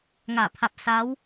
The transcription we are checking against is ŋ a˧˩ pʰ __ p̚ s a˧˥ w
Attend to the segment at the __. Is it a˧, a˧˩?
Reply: a˧˩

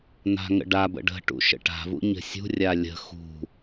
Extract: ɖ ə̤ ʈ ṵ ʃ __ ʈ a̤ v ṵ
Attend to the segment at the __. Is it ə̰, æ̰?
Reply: ə̰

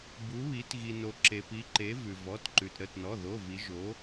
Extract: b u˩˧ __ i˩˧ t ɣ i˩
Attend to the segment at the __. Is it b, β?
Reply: β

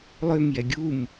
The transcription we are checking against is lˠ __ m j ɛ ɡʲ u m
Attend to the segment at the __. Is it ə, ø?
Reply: ø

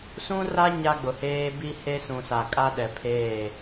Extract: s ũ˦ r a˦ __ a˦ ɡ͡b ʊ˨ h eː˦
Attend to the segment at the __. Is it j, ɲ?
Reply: ɲ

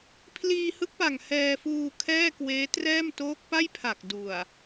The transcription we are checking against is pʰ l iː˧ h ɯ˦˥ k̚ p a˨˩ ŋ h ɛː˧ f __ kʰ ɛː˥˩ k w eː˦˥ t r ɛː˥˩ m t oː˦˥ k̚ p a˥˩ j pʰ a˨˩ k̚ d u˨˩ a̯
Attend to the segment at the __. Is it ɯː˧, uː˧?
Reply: uː˧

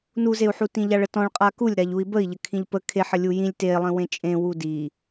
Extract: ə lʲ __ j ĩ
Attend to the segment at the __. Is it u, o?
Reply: u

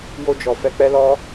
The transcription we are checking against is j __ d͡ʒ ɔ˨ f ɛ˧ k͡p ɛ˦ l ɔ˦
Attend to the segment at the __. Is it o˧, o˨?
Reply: o˧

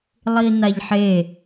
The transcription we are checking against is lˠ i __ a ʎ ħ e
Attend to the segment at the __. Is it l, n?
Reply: n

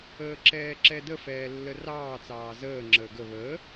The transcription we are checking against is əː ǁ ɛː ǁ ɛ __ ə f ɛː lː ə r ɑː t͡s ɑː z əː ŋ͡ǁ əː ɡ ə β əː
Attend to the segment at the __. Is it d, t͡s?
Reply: d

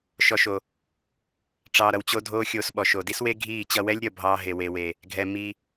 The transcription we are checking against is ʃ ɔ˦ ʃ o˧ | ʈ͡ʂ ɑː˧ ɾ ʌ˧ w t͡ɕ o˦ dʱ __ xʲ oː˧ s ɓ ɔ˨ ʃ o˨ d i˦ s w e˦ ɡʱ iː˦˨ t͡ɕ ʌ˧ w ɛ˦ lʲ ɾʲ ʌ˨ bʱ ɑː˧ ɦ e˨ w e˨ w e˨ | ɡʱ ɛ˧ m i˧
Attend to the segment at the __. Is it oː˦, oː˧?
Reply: oː˦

